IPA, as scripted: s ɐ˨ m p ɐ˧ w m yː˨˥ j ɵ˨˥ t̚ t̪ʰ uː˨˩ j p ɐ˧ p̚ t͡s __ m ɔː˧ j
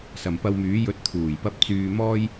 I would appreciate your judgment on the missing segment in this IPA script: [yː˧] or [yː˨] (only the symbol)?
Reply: yː˨